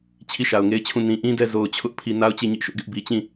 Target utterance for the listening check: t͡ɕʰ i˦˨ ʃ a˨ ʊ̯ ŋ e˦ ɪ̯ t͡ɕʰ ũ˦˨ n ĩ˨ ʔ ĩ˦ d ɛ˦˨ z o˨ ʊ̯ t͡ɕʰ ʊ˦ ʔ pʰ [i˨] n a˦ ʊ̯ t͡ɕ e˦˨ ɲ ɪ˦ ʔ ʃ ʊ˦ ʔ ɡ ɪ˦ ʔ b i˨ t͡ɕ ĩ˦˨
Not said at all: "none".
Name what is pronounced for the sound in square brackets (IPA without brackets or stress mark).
i˨